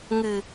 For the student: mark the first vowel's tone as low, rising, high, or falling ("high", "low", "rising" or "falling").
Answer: low